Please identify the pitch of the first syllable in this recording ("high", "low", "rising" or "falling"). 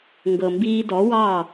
low